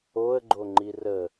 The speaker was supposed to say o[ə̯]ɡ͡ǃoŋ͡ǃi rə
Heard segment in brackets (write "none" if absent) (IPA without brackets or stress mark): ə̯